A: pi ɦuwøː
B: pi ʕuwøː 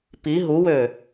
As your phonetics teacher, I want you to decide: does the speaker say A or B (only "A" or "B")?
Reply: A